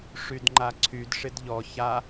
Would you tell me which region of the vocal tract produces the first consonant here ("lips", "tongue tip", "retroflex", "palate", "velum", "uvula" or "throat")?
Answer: retroflex